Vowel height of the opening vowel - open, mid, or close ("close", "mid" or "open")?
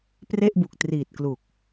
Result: mid